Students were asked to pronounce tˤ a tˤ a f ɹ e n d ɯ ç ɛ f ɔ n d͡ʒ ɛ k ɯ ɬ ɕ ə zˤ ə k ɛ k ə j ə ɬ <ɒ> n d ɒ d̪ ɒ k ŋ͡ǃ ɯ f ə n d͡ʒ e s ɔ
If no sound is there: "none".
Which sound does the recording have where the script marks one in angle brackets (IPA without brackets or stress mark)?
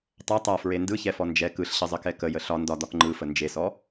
ɒ